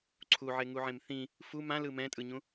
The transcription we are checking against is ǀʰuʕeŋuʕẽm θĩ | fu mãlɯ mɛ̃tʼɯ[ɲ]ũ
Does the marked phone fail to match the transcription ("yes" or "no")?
no